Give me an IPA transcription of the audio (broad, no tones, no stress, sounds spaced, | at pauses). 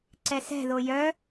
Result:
ǀ ɛ s ɛ̤ ð o j œ